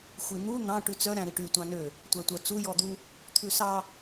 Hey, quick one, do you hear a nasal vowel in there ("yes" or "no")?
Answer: yes